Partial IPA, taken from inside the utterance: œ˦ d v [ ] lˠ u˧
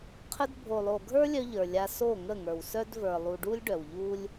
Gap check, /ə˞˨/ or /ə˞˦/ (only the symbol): ə˞˨